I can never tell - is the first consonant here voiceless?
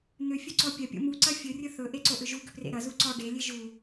no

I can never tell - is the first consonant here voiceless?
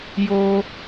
no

